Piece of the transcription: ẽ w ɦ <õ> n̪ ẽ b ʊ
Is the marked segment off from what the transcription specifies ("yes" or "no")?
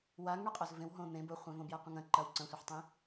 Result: no